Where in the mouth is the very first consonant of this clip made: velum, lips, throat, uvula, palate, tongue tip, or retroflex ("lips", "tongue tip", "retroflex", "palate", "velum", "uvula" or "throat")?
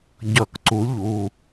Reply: palate